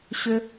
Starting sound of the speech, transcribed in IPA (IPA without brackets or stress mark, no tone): ɕ